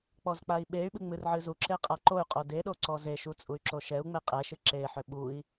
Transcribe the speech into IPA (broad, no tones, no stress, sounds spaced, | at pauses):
k͡p ɔ z k͡p a i̯ ɓ e y̯ ɓ ɨ ŋ͡m ɨ r ʕ ɨ z u ǁ e qʼ a ǃ o y̯ qʼ o d e ɗ o ǀ ɔ z e ʃ u t͡sʼ u y̯ ǁ o ʃ ɛ u̯ ŋ͡m e qʼ ɛ ʃ ɨ ǁ e ħ ʏ ɓ u i̯